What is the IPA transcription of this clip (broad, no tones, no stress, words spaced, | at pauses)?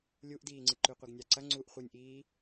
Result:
lʲuʔdiːŋ͡ǀɨ ǃʉqʷeɡnʲaǀɐ ŋ͡ǀuʔ χʷɨnʲʔiː